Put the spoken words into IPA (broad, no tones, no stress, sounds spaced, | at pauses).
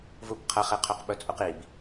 v u b qʰ ɐ χ e qʰ ɵ q ɓ ɵ t͡sʼ u q i b